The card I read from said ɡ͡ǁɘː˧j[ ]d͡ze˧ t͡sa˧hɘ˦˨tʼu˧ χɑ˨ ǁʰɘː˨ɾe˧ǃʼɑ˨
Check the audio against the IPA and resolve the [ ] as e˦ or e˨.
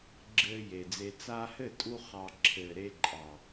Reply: e˨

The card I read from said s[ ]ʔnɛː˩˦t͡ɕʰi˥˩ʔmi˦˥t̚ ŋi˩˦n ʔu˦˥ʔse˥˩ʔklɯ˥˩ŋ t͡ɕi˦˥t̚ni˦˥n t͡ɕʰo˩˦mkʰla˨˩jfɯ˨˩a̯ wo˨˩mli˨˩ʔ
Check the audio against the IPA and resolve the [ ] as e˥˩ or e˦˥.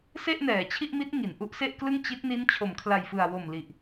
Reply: e˥˩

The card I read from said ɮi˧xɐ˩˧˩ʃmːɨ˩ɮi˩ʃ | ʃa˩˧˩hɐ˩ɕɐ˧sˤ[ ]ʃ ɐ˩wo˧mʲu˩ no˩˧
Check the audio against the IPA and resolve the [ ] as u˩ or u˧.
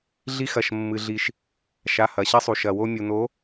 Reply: u˩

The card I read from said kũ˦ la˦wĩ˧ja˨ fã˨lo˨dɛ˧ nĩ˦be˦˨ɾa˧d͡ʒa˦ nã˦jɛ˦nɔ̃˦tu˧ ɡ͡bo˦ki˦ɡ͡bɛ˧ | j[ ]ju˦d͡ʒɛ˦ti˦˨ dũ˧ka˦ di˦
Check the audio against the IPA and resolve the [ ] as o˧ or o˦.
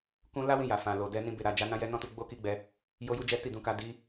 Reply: o˦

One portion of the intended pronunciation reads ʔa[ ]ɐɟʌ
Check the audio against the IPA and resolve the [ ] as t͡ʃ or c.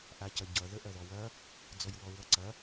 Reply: c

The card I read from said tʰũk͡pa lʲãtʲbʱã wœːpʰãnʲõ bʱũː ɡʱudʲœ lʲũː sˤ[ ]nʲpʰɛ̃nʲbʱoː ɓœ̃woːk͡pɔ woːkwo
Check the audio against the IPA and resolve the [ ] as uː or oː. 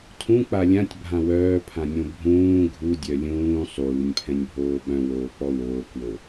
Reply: uː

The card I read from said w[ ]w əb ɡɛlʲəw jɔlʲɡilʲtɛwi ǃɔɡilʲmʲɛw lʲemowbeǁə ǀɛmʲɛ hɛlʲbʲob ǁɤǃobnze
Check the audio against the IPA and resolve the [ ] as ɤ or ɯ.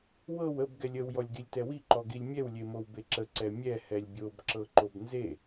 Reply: ɤ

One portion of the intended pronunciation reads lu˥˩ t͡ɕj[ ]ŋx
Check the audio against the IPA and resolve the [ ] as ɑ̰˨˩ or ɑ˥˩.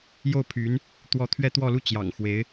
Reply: ɑ̰˨˩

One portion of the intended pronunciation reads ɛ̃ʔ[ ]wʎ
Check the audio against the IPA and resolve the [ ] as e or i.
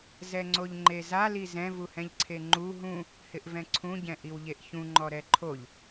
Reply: i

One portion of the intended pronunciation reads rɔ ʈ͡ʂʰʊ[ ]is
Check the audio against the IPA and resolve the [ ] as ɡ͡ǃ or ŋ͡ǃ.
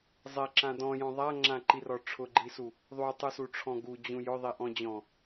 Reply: ɡ͡ǃ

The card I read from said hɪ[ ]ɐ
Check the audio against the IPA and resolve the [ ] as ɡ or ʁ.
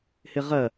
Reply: ʁ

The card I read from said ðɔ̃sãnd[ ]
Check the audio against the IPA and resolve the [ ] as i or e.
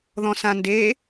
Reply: e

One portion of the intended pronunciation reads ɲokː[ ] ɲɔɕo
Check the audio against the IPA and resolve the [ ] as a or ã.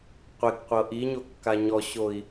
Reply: a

